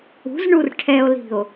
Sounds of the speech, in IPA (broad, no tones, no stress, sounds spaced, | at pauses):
ṳ z ɳ u r ʈʰ ɛ o̯ l i̤ o̯